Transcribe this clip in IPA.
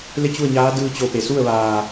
le˥˨t͡ɕu˥˨ə̯ɲaː˧˥ dɯː˧t͡ɕo˧˩pe˩su˥˨ə̯ ʋaː˧˩

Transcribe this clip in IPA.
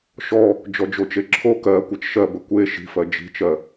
ʃɔ | d͡ʒɔd͡ʒot͡ʃeǁʰo kɜ kʷʌt͡ʃʃɜbə kʷe ʃi̤fɜ d͡ʒi̤t͡ʃɜ

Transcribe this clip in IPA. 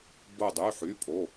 bo˥˧dˤy˧˥˧ħy˧˥˧pʼo˧˥˧

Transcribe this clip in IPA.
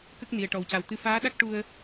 kə˦˥k̚ni˨˩ə̯ ʈɔ˨˩wca˨˩wt̪ɨ˧ faː˧˥ɗa˦˥k̚ ʈu˧ə̯

